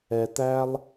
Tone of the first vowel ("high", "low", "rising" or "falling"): low